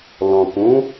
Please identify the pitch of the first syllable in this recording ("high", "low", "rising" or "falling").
low